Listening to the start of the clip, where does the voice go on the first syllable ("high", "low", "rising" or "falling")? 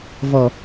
low